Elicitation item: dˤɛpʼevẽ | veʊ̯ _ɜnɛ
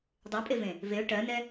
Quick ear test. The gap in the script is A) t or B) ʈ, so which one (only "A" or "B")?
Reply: B